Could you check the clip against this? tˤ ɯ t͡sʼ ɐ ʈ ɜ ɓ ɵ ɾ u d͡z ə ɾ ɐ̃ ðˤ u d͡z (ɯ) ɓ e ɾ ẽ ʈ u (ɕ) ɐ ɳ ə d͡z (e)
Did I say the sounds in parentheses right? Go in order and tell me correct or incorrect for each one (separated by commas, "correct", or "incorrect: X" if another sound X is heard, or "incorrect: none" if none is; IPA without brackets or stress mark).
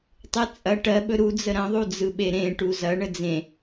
correct, incorrect: z, incorrect: ẽ